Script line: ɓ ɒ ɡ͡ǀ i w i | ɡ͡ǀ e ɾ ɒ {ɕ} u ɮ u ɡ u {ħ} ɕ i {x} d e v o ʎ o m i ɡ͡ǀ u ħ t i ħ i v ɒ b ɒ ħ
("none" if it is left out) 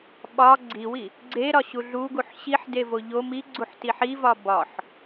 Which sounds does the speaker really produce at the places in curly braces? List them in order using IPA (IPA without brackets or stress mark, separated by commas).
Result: ɕ, ħ, ħ